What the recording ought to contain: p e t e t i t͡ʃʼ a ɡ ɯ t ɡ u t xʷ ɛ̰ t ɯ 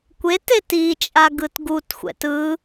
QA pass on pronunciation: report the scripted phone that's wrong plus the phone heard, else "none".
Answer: p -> kʷ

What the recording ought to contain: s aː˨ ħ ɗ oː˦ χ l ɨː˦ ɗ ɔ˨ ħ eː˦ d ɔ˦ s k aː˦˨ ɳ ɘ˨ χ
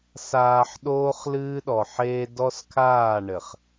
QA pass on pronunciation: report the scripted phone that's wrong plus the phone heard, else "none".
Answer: k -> kʰ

